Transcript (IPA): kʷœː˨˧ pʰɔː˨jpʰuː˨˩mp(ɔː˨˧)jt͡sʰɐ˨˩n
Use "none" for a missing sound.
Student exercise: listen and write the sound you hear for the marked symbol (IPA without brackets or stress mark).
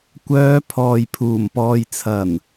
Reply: ɔː˨